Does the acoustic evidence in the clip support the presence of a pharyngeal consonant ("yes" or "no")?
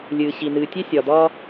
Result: no